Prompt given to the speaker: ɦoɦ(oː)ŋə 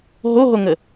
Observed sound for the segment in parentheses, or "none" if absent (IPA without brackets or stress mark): o